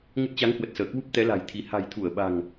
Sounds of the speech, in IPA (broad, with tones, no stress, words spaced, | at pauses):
ŋə˦˥t̚ t͡ɕa˨˦ŋhwə˨˩t̚səː˧˩kwu˦˥p̚ t̪ɛ˨˦la̤˨˩j t̪ʰi˧ ha̤˨˩jt̪ʰu˧˩ə̯ɓa̤˨˩ŋ